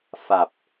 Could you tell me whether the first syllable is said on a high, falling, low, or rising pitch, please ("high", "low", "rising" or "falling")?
low